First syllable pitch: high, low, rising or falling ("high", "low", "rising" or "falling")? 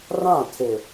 falling